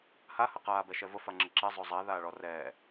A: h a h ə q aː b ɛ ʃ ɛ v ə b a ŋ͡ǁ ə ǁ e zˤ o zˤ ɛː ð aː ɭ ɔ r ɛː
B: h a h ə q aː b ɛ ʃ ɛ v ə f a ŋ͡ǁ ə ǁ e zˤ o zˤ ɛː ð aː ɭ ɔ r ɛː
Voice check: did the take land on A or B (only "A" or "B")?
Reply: B